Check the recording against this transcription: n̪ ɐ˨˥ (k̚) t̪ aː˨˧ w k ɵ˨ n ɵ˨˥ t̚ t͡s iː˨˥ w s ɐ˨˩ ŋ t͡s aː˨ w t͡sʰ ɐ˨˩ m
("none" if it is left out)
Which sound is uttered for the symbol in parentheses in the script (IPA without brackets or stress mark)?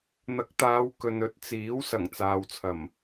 k̚